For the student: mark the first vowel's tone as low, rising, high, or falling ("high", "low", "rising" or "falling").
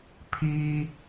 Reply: high